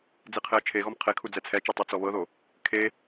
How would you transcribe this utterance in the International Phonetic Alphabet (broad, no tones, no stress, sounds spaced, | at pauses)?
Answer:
d͡z i qʰ e ə̯ t͡ʃʰ e ɣ ɔ m qʰ e kʰ u d͡z ɛ t͡sʰ ɛ t͡ʃ e tˤ ɛ t͡s ɔ β ɤ ð o | kʰ e